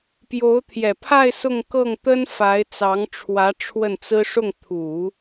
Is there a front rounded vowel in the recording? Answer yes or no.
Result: no